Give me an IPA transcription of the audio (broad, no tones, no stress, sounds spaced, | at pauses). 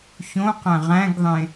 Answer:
ç õ q æ̃ ʁ æ̃ ɡ ðˤ ẽ